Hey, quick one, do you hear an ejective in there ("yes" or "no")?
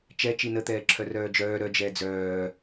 no